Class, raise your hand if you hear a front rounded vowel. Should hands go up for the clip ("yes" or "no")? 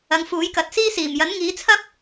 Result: no